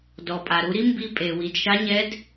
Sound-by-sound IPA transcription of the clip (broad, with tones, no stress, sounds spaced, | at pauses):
d ɔ˩ pʼ a˩ ɾ u˩˧ ɾ i˧˥ m b i˧ pʼ e˩ w i˩ d ʃ a˧˥ ɲ ɛ˧˥ d